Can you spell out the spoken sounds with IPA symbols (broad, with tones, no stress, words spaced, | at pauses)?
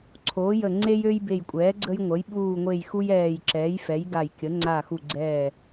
ǀʰoː˩˥jə˧˩ ŋ͡ǀe˦jø˦jbe˧˩jkʷʼɛː˩˥ ɡ͡ǀə˦jŋʷə˩˥j ɓuː˧˩ŋʷe˧˩j xu˦jɛː˧˩j ǁɛː˩˥jfɛ˩˥j ɡa˧˩jkʲə˩˥ ŋ͡ǀa˧˩xu˧˩ɡ͡ǀɛː˧˩